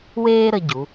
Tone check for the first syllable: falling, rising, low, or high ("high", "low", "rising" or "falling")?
high